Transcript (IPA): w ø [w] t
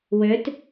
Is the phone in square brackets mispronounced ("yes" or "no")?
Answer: yes